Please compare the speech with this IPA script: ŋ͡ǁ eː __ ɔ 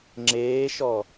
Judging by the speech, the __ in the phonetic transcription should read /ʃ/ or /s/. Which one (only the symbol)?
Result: ʃ